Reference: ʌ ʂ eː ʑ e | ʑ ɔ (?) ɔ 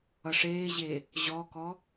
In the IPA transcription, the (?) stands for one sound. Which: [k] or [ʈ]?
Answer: k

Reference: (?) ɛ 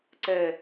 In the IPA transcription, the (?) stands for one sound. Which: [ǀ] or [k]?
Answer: ǀ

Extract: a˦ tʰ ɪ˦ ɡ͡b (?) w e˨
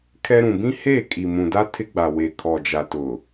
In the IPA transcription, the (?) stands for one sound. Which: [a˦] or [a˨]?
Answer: a˨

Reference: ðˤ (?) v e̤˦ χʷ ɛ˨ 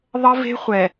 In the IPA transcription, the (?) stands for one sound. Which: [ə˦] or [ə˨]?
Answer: ə˦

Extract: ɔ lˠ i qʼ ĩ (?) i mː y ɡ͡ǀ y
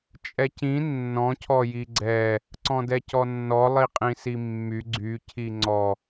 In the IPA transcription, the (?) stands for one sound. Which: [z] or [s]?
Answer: s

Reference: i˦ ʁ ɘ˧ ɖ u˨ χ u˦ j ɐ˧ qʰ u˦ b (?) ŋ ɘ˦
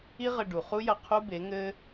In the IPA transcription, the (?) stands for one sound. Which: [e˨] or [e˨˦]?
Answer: e˨˦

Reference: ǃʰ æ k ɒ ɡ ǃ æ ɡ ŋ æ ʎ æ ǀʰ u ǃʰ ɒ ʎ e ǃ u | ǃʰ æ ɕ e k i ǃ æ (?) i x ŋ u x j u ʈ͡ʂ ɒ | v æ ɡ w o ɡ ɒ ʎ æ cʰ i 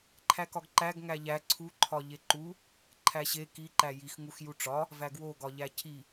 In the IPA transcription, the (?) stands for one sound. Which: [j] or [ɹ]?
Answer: j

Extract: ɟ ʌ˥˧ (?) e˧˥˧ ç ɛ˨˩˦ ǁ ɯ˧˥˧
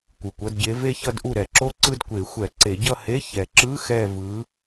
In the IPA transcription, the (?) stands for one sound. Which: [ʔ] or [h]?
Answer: h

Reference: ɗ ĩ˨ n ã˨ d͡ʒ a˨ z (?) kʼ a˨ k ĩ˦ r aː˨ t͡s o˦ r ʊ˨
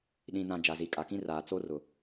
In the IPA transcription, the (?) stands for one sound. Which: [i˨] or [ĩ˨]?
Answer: i˨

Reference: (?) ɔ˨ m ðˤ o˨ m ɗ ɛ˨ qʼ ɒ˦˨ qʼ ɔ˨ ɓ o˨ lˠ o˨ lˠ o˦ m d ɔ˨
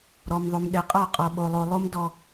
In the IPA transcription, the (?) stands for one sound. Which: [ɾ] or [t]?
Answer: ɾ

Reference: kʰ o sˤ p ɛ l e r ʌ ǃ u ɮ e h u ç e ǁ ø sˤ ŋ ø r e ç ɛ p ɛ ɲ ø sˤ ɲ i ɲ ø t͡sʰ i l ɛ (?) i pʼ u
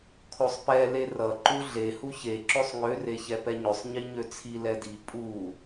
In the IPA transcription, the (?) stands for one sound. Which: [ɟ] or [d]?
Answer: d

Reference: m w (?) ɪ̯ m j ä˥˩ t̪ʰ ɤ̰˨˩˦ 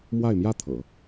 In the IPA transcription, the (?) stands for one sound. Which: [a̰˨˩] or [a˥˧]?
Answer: a˥˧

